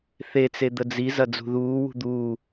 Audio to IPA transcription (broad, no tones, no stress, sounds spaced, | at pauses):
θ e t͡s e d̪ ə d͡z i z ɐ d͡z ṳ ð uː w ṳ d̪ uː